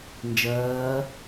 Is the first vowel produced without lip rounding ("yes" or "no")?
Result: yes